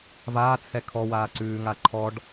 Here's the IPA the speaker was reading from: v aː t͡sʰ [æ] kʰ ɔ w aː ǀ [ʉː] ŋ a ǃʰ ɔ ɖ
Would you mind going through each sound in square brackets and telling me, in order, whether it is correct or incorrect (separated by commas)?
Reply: incorrect, correct